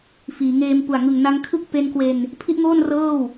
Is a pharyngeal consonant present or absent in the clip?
absent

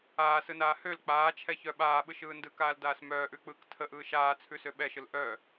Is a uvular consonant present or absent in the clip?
absent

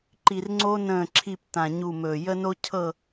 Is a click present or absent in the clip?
present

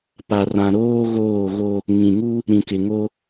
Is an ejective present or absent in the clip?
absent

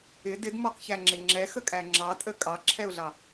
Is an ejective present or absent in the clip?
present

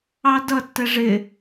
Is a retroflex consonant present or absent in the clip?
present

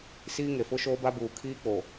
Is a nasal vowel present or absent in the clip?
absent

